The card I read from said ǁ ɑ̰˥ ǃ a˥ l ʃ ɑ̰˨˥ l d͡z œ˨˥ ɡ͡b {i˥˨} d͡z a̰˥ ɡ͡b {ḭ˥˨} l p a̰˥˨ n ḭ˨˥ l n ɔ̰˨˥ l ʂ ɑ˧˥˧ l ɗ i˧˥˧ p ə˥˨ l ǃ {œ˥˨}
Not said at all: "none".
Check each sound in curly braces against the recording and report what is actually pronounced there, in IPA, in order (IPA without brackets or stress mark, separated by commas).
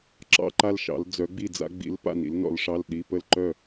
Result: i˥˨, ḭ˨˥, œ˥˨